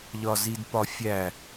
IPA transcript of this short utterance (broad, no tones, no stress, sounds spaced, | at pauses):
ʎ ɒ z i d p ɒ fʲ æ